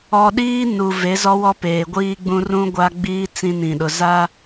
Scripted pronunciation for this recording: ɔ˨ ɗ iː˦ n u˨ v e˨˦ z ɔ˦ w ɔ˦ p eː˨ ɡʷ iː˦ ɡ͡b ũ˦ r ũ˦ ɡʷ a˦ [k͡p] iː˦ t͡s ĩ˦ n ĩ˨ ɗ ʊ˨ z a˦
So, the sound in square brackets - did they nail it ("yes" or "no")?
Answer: no